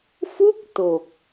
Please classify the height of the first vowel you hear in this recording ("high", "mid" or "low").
high